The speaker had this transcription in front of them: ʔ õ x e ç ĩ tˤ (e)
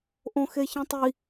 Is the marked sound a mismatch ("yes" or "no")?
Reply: yes